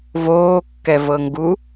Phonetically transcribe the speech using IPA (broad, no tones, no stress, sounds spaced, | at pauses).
v oː kː ɛ v ɤ ŋ ɡ u